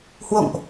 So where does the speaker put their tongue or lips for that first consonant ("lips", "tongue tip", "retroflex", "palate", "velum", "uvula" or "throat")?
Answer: throat